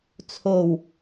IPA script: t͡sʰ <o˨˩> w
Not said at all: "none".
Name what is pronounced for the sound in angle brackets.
o˨˩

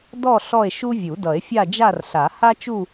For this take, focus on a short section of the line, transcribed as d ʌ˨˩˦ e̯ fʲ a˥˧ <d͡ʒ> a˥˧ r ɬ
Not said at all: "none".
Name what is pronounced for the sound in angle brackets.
d͡ʒ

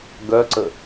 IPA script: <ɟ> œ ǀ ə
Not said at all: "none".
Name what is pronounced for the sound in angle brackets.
ɡ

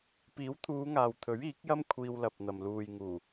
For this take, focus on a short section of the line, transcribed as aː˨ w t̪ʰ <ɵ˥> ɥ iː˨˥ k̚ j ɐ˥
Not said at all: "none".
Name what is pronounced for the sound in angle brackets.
ɵ˨˥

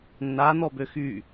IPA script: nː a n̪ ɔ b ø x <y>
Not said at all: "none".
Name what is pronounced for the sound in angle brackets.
y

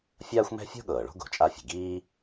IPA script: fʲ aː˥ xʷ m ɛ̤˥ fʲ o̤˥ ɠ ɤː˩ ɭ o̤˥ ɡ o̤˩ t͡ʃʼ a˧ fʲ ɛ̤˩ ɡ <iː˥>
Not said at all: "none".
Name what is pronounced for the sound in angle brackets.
iː˥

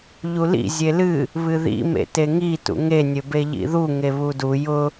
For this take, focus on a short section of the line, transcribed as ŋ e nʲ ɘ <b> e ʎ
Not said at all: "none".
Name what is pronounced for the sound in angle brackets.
b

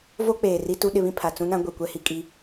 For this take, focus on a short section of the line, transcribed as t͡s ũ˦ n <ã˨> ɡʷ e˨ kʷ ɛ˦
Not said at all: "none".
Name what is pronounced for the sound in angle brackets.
ã˦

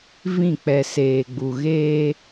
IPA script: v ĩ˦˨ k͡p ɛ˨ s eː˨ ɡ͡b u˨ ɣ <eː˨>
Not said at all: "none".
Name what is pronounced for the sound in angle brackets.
eː˦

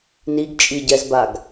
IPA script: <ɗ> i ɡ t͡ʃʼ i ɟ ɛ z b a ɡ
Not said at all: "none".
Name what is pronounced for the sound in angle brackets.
n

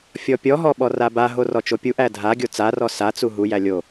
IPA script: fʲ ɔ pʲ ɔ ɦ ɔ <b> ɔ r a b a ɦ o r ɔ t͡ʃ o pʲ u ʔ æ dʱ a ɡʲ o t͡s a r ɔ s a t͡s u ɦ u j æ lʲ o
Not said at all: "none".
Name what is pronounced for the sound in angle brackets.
ɓ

